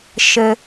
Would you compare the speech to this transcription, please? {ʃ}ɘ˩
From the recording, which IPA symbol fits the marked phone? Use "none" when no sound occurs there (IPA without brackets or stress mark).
ʃ